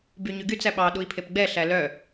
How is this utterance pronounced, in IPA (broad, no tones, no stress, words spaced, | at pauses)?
byɲʉɡyt͡s æɓɑ ɗui̯pʰepɡ͡bɛ ɬælœ